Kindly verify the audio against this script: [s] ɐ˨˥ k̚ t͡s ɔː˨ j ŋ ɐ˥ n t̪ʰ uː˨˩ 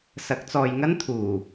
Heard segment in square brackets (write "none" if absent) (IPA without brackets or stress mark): s